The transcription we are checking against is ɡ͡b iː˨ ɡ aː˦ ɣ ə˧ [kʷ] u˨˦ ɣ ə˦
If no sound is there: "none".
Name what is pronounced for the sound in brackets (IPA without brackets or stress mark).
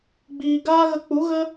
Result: k͡p